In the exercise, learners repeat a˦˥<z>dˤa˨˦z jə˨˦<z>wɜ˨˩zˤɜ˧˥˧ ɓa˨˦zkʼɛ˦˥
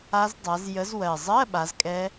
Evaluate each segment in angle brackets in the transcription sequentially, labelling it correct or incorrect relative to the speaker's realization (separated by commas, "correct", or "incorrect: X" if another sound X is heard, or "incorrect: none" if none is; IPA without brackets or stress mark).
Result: correct, correct